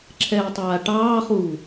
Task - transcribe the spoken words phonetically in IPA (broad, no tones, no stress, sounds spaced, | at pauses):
ǁʰ ɛː tˤ aː ʈ ɑː χ uː